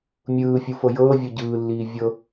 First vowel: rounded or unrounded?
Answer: unrounded